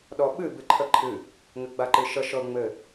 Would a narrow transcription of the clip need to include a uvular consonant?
no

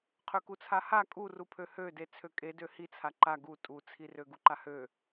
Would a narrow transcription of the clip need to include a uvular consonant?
yes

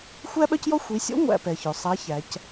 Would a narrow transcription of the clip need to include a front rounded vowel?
yes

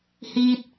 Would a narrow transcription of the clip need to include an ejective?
no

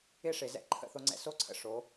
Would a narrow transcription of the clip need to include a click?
yes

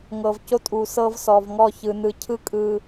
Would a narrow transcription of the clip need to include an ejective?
yes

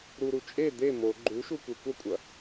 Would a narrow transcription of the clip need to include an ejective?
yes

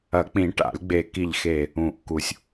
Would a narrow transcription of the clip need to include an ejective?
no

